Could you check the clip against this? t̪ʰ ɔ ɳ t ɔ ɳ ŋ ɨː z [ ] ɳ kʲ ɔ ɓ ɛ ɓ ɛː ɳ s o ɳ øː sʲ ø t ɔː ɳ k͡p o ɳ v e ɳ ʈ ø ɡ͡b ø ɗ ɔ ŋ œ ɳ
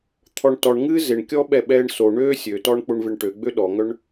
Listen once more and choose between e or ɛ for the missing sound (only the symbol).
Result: e